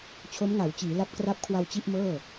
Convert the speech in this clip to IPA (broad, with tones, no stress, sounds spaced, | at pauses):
t͡ɕʰ o˦˥ m ŋ a˩˦ w t͡ɕ iː˩˦ l a˦˥ p̚ k r a˦˥ p̚ kʰ w a˧ w t͡ɕ i˥˩ ʔ m ɤː˥˩